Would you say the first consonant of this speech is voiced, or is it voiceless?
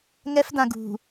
voiced